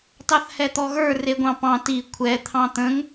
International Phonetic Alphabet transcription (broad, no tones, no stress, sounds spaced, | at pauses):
t ɑ θ h ɛ t̪ ɔ ɣ ə˞ r e ɡʷ ɑ̃ p ɑ̃ t i kʷʰ ɛ t̪ʰ ɑ̃ t̪ ə̃ ŋ